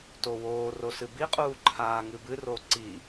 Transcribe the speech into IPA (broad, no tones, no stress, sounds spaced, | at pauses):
t o w oː r o s ɨ b i qʼ uː ǃʰ aː ŋ ɨ b ɨ r o ǀ i